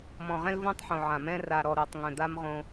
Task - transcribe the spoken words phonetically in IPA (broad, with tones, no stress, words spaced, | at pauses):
mɔ̃˨ʁɛ̃˦lvõ˦tˤħõ˨ ʕã˨mɛ̃˦ ra˨ɾɔ˨ɾo˨tˤ ŋœ̃˨d̪a˦mʁõ˦